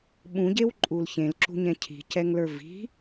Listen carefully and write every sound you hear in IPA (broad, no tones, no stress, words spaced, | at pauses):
ɓũɟewǃʼul çẽlǁṳɲɛ̃ cʰi̤cɛŋlə˞ vi̤